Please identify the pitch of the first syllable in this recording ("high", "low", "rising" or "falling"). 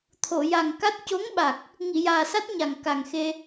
low